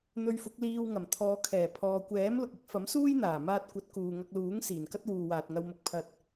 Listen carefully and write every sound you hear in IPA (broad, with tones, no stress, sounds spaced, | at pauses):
n̪ ɵ˧ ɥ f ʊ˨˥ k̚ l iː˧ w ŋ ɐ˨˩ m t̪ʰ ɔː˨˧ kʰ ɛː˨˩ pʰ ɔː˨ kʷ ɛː˨˥ m l ʊ˨ k̚ ɪ˨˥ k̚ f ɐ˨˥ m s uː˥ j n̪ aː˨˩ m aː˧ t̚ kʷ ɐ˨˥ t̚ k uː˨ ŋ ɐ˧ k̚ l uː˨˥ ŋ s iː˨˩ n k ɐ˥ t̚ w uː˨ w aː˨ t̚ ŋ ɐ˧ w m ʊ˧ k̚ pʰ ɐ˧ t̚